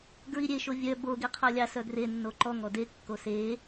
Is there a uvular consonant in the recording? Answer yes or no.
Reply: yes